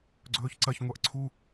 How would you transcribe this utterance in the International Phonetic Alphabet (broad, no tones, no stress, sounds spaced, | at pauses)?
ɡ͡ǀ ɵː ç ǀ ɐ ç ŋʷ a ʔ ǀʰ u